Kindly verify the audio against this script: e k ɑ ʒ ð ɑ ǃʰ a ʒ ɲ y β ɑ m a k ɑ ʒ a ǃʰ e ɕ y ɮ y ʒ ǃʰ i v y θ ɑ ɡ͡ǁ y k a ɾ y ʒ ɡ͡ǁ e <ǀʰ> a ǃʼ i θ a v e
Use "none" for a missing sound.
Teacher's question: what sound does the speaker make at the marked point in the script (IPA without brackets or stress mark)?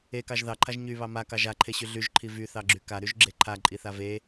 ǃʰ